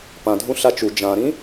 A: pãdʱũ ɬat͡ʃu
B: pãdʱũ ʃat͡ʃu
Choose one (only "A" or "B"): A